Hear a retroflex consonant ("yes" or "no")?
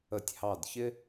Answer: no